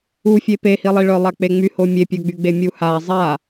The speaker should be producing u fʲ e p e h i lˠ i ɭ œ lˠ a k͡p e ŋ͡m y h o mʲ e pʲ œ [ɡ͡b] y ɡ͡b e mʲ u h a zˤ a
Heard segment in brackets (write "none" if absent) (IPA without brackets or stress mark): ɡ͡b